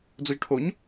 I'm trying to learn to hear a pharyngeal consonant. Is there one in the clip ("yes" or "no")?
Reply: no